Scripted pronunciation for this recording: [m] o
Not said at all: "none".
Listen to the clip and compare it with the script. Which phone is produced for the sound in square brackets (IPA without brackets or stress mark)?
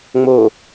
ŋ͡m